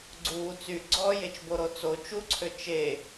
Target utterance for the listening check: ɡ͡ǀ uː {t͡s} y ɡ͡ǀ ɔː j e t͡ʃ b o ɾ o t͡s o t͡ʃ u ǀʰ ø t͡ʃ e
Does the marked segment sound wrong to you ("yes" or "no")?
no